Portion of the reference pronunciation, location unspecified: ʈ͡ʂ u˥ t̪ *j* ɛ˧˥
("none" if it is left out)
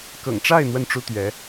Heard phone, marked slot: ɥ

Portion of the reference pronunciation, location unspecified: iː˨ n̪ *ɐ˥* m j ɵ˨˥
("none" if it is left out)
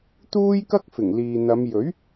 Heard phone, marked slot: ɐ˨˧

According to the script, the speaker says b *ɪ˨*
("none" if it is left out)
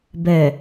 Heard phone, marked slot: ɛ˨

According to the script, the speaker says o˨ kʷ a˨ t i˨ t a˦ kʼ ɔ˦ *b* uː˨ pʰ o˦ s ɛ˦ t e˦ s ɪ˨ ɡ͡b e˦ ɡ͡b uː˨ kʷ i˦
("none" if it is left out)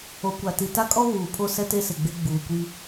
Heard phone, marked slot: β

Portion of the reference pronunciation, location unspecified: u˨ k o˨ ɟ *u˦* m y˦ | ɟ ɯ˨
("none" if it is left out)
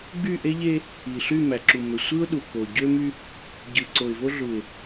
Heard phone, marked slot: ø˦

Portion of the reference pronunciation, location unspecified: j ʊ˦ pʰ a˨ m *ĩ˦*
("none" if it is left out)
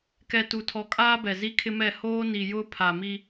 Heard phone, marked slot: i˦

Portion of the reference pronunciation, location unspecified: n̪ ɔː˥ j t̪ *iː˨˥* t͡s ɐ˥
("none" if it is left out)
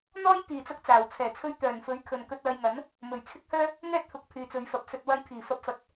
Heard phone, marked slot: iː˧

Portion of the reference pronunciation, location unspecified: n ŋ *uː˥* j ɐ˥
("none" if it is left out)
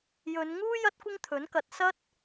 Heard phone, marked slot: uː˥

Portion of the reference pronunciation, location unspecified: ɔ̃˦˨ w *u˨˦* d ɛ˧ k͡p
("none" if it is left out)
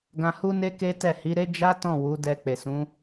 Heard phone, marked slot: u˨˦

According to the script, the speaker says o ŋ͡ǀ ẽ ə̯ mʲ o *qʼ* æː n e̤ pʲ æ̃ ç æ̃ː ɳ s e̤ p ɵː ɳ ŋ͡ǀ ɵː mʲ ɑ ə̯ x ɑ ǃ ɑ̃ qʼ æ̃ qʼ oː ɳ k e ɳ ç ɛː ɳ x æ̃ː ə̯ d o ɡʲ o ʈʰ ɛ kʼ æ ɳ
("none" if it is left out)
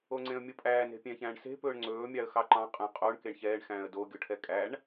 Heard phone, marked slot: pʼ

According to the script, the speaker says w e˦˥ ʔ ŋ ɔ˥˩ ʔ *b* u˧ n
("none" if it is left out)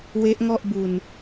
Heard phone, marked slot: b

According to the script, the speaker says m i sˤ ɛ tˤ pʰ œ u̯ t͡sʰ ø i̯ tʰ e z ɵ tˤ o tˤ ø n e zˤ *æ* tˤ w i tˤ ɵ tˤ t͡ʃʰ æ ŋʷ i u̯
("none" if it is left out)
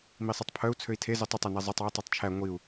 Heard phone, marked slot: œ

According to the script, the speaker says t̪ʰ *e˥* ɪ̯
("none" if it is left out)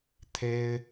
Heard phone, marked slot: e˥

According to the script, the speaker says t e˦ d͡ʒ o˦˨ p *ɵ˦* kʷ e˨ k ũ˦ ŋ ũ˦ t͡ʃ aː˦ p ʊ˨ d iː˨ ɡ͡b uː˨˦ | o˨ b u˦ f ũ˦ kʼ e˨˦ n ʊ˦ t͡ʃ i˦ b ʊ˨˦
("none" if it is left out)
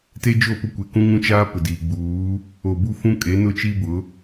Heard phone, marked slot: ʊ˦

